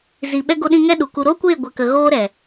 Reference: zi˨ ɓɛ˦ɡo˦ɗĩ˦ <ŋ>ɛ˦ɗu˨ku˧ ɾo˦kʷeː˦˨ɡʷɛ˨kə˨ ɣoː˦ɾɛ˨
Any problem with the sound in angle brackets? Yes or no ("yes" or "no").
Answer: no